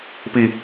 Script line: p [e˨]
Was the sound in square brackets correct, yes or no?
no